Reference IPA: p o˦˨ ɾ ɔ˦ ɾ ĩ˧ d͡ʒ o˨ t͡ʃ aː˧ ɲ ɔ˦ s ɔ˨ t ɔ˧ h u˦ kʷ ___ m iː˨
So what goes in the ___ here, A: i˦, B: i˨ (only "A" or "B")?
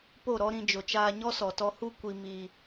B